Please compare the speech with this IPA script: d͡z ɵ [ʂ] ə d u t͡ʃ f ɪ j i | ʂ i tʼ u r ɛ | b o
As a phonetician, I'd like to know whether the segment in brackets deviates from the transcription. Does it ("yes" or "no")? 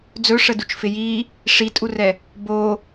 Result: no